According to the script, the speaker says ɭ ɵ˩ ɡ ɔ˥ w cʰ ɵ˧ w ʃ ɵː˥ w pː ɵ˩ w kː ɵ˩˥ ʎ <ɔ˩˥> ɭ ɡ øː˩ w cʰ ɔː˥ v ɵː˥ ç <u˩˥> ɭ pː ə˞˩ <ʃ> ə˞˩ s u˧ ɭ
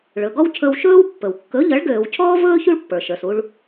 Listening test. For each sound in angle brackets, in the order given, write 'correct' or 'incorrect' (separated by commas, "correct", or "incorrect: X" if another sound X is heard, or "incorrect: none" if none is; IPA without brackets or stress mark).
incorrect: ʌ˩˥, incorrect: u˥, correct